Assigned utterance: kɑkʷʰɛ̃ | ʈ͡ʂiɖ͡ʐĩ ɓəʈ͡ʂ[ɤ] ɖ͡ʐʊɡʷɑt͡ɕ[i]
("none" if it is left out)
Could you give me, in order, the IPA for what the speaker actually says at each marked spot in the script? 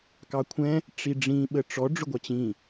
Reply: ɔ, ĩ

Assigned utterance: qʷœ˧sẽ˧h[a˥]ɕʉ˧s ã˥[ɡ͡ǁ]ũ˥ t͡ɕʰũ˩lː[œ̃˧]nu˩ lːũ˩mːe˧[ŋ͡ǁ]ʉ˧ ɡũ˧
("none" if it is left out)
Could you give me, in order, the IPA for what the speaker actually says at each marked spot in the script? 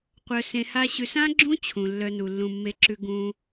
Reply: a˥, ɡ͡ǁ, œ˧, ǁ

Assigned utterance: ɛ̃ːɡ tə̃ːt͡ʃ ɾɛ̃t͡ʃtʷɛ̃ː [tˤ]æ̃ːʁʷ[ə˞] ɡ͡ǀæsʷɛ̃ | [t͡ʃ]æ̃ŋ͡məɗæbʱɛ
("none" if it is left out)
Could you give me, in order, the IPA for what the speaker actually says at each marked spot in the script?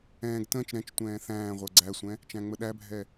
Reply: θ, ə˞, t͡ʃ

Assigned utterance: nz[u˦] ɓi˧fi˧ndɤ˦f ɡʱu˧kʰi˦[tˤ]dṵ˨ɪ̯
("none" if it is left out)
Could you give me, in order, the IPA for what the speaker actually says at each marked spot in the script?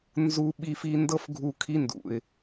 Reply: u˧, n

